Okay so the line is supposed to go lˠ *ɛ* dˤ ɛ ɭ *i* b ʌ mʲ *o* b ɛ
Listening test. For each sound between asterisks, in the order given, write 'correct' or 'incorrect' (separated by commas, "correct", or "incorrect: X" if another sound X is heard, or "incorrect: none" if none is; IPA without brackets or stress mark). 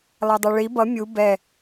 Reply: correct, correct, incorrect: u